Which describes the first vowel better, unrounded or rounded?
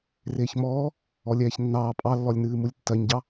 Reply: unrounded